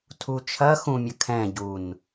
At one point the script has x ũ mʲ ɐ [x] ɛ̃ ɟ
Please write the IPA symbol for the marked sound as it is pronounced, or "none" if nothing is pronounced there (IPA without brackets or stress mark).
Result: kʰ